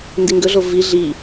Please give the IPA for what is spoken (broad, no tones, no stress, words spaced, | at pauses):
ndiŋɡɵɮo vi ɮi